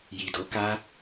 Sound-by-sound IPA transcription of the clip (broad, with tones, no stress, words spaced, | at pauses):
ji˨do˨˦ka˦